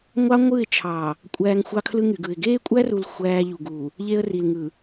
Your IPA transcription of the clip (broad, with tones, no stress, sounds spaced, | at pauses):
ŋʷ ɑ˦ ŋʷ ɯ˦˨ ɪ̯ t͡ʃʰ ɑ˨ | kʷʼ æː˦ ŋ xʷ ɑ˦ kʰ l ɯ˦ ŋ y˨ ɡ ɯ˨ ɪ̯ ɡ eː˦ kʷʼ æ˦ r u˨ l xʷ æː˦ ʎ u˨ ɡ u˨ | ʎ e˦ ə̯ r i˨ l ŋ ɯ˨